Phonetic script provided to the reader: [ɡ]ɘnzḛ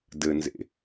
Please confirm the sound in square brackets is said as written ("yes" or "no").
no